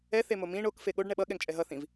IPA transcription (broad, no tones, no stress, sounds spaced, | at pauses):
ɛ θ e m o m ĩ ɳ o k f e ɠ o ɖ ɳ ɛ ɓ ʌ ɠ ɛ ŋ t͡ʃʼ ɛ ɦ ʌ θ ĩ v